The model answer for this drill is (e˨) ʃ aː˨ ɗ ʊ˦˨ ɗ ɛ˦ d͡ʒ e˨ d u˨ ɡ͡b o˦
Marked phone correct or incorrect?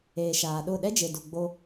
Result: incorrect: eː˨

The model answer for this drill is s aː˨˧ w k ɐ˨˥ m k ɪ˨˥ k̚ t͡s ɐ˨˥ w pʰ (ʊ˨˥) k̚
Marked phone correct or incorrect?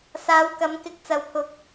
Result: correct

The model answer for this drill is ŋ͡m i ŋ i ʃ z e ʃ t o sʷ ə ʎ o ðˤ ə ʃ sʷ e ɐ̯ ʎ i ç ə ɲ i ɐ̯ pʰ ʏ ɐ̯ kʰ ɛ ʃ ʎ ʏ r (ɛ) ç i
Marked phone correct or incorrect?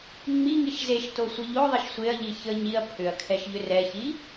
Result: correct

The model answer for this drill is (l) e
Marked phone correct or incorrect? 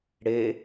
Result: incorrect: ɽ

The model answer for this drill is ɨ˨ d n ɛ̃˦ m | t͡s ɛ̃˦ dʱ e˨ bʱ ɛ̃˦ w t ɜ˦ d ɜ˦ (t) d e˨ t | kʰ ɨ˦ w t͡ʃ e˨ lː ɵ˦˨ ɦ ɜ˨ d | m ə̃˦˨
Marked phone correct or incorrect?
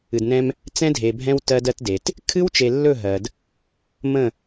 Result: correct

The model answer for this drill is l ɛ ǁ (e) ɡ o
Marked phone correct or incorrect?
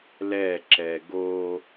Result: incorrect: ɛ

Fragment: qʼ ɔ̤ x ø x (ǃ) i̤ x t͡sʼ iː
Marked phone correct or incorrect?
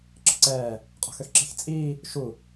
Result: incorrect: ǁ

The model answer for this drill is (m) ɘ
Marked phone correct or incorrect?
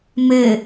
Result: correct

